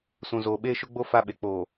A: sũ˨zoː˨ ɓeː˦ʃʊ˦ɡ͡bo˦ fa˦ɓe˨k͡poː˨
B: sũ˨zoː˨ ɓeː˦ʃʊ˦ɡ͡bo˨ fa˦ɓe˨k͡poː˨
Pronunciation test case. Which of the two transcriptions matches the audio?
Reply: A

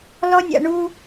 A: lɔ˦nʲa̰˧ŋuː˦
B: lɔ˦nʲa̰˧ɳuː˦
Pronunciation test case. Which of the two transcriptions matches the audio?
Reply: B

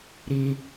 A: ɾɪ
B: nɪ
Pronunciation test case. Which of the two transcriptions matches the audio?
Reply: A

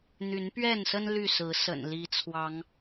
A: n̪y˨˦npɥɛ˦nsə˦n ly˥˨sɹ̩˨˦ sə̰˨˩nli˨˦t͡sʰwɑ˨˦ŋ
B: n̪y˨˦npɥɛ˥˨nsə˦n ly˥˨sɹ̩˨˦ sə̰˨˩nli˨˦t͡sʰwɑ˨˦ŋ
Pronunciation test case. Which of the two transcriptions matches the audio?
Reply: B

